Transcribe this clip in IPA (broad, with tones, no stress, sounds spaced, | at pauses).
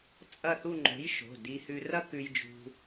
t͡sʼ ɐ˥˧ θ u˥˧ ŋ͡ǃ o̤˨˥ j ʃ o̤˩˧˩ d i˧ h ʉ˧ r ɐ˥ k ʉ˧ j d͡ʒ ṳ˧